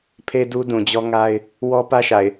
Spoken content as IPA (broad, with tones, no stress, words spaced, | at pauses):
pʰe˦ du˦dũ˨d͡ʑɔ˦ ŋa˦ɪ̯ | wɔ˦pä˦ʃa˨ɪ̯